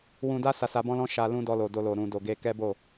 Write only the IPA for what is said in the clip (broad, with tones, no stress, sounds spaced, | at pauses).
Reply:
w ũ˧ d a˦ s a˧ s a˧ b ɔ̃˦ l ɔ̃˦ ʃ a˧ l ũ˧ d ɔ˧ l o˨ d o˧ l o˨ ɾ ũ˧ d o˧ ɡ e˦ k ɛ˦ b o˦˨